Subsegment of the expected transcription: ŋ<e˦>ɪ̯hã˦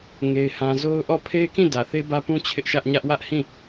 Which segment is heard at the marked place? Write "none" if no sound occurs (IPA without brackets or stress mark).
e˦